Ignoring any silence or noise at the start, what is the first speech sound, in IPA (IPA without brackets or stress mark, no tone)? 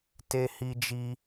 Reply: t